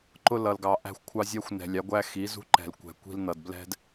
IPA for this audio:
ǃ ʊ˦ l ʌ˨ l ɡ ɑ˨ ʔ æ̤˦ xʷ kʷʰ ɑ˦ zʲ æ˦ xʷ n ɛ̤˨ lʲ ɑ˨˦ ɡʷ æ˦ x i˨˦ z ṳ˦ ǃ ɛ̤˨ l kʷ ɛ̤˨ kʷ i̤˦ l n ʌ˨ d b l ɛ̤˦ d

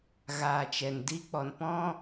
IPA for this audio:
ɣ aː˨ t͡ʃ ɛ˨ n d i˦ k͡p ɔ˨ n p ɔ̃˦

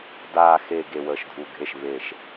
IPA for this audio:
d aː˨ x e˨ ɡ e˨ w əː˨ ʃ dʱ u˨ ɡʱ e˦˨ ʃ β e˨ ʃ

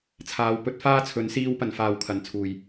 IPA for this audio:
t͡sʰ aː˨˧ w p ɵ˨˥ t̚ f aː˥ t͡sʰ ɵ˨˥ n s iː˧ w p ɐ˨˩ n f aː˨˩ w kʰ ɐ˨˩ n t͡sʰ uː˨˩ j

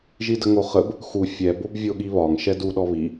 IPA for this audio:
ʒ i d ə ŋ o χ ə b | x u fʲ ɛ b o b vʲ o ɠ i β ɒ ŋ ʃ ɛ d u ɗ ɔ β i

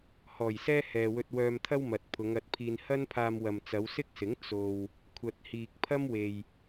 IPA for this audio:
h ɔː˨˩ j s ɛː˥ h ɛː˨ w ɵ˧ t̚ w œː˧ m t̪ʰ ɐ˥ w m ɐ˨ t̚ pʰ ʊ˨˧ ŋ ɐ˨˥ t̚ pʰ iː˧ n h ɐ˥ n pʰ aː˧ m w ɐ˨ m t͡s ɐ˨˧ w s ɪ˥ k̚ s ɪ˨˥ ŋ t͡s o˧ w | kʷʰ ɐ˨ t̚ h iː˨ k̚ pʰ ɐ˥ m w e˨ j

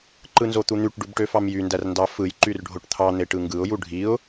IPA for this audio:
ǃ ɯ n z o t̪ u n̪ y ʈ ɖ u b ʈ ø f ɑ m j y n d æ r n d ɑ f ɯ j ǃ y r ɖʱ o ʈ t̪ʰ ɑ n̪ e ʈ ɯ ŋ ɡ ɯ ʊ̯ j u ɖʱ i ʊ̯

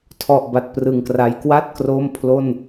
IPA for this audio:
tʰ ɔ˨˩ ʔ b a˨˩ t̚ p r ɯ˨˩ ŋ k r a˧ j k w a˥˩ t̚ k r o˥˩ m pʰ l o˥˩ n

